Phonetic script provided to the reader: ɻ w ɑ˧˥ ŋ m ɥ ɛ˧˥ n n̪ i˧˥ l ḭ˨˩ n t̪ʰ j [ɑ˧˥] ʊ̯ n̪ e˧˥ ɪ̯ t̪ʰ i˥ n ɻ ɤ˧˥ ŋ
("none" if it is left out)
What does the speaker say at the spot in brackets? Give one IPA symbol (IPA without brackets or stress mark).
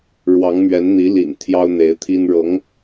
ɑ˥